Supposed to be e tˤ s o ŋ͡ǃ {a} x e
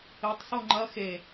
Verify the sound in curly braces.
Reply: incorrect: ɐ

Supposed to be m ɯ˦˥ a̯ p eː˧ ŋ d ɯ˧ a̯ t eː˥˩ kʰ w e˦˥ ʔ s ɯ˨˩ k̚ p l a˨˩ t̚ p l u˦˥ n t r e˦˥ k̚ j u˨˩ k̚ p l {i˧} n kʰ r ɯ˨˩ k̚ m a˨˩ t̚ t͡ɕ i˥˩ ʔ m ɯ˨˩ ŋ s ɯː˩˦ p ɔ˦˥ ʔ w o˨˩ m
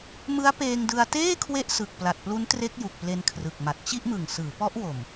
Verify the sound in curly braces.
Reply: incorrect: e˧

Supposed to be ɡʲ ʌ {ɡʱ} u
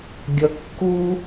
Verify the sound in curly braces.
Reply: incorrect: kː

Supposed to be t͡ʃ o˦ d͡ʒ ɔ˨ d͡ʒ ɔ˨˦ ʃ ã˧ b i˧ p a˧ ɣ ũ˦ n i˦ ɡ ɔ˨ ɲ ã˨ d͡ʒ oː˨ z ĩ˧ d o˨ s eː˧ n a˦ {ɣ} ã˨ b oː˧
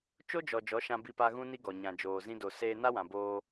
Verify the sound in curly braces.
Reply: incorrect: w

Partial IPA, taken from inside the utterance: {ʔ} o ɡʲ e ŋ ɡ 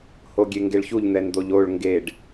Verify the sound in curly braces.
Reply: incorrect: h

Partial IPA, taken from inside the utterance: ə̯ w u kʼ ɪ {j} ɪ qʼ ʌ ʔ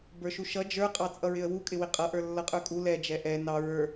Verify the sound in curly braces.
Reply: incorrect: w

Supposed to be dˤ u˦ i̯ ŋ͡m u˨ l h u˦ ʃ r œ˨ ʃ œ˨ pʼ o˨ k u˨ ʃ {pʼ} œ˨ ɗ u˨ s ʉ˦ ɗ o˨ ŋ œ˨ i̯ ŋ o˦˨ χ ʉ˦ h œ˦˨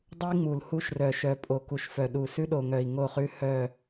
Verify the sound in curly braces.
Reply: incorrect: f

